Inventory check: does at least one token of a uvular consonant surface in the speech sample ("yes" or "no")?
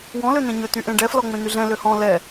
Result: no